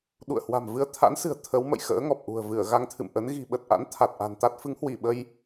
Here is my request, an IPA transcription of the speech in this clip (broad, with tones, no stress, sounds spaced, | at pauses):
ɗ ṵ˧˨ ə̯ h w a̤˨˩ m v ɨ˧ ə̯ t̪ʰ a̰˧˥ n s ɨ̤˨˩ ə̯ t̪ʰ ə˨˦ w m ə̰˧˨ j x ə̰ː˧˥ ŋ ɔ˨˩ p̚ ʔ ṳ˨˩ ə̯ v ɨ˧˩ ə̯ ɣ a˧ ŋ t̪ʰ ɨ̰˧˨ m ʔ ə˨˦ n ɣ i̤˨˩ ɓ ə˨˩ t̚ ʔ a̰˧˥ n t̪ʰ a˨˩ t̚ ʔ a̤˨˩ n t̪ a˦˥ t̚ f ɨ˨˦ ŋ h w i˧˩ ɓ ə˧ j